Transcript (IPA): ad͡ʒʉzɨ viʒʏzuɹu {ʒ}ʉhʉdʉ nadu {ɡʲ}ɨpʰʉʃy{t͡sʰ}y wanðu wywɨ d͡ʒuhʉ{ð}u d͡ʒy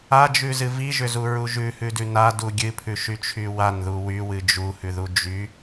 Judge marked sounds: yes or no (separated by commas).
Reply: yes, yes, no, yes